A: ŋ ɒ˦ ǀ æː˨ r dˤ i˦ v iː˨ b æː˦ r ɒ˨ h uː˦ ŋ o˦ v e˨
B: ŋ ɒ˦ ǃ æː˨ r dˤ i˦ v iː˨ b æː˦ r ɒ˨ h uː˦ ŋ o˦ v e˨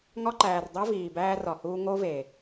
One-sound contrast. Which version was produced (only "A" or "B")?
B